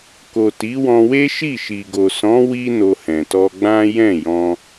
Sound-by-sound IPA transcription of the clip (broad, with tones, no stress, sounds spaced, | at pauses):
k o˨ t i˨˦ w ɔ̃˧ w e˦ ʃ i˦˨ ʃ i˨ ɡ o˨ s ɔ̃˨˦ w i˦ n o˧ h ɛ̃˨ t ɔ˧ ɡ͡b ã˦ j ɛ̃˦˨ j ɔ̃˧